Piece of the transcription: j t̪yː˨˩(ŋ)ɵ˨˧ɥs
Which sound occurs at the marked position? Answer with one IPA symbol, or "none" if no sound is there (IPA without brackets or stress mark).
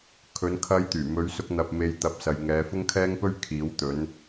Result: m